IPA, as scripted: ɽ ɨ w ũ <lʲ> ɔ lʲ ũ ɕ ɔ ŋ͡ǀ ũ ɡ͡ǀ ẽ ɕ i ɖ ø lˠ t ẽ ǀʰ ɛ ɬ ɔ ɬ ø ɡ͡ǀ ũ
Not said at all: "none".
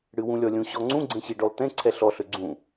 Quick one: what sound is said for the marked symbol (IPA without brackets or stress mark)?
lʲ